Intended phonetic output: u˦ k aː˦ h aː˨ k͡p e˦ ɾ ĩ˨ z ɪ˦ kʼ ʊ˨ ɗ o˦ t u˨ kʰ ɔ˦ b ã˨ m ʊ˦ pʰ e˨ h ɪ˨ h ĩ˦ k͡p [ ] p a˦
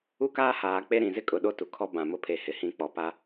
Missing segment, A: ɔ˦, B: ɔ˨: B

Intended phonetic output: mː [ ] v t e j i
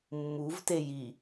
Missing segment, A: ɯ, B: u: B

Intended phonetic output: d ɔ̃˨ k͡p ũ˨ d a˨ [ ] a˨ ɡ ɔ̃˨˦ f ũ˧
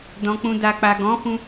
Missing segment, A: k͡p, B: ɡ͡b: A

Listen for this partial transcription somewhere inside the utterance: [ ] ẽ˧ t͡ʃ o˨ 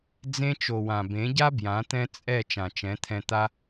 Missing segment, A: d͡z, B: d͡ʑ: A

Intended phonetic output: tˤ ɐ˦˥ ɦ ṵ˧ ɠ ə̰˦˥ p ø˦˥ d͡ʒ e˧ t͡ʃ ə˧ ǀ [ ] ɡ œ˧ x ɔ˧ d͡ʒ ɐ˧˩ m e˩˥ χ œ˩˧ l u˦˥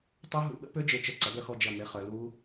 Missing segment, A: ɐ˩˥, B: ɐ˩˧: A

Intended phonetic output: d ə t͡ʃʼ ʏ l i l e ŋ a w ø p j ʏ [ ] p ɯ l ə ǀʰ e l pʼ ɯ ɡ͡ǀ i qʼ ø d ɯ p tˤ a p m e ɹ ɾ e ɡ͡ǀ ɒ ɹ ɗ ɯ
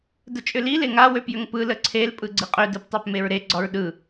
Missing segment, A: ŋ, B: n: A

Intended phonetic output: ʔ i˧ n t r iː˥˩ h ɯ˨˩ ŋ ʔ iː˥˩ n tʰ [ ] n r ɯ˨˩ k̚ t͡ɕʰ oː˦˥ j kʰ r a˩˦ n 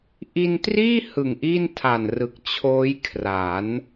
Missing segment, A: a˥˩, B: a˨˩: B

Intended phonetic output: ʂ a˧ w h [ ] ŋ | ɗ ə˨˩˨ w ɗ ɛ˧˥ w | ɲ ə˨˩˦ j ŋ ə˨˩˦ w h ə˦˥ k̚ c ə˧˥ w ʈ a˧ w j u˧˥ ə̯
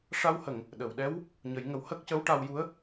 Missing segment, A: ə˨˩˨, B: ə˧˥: A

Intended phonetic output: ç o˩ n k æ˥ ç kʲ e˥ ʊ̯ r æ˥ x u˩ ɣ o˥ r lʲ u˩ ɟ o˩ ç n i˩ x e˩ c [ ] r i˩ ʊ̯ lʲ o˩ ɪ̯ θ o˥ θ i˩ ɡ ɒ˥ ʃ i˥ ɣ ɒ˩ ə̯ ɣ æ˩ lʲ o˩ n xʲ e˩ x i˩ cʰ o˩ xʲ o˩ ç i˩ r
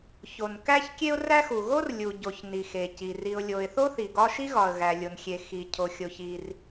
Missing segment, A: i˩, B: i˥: A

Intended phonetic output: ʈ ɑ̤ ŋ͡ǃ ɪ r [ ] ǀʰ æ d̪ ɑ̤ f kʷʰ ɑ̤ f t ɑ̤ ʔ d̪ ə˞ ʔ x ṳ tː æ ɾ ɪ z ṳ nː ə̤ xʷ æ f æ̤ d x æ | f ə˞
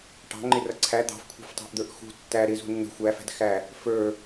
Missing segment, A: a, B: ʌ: B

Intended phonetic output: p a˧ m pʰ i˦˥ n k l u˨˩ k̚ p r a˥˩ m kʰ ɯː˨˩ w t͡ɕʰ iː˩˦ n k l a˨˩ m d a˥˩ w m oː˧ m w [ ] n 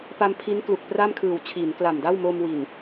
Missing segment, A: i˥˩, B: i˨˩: B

